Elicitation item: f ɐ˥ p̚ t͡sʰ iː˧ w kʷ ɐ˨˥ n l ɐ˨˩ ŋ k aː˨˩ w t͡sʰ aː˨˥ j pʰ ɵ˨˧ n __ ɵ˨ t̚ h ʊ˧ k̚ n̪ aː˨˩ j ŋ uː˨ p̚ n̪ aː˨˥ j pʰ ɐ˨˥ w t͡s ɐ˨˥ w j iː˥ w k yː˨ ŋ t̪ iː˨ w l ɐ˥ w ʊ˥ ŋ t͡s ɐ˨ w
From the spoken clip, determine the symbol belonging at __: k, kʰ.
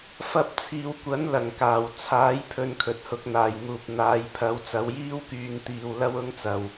kʰ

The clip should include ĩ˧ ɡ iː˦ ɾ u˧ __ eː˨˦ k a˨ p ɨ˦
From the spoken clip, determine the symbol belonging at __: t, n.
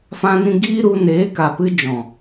n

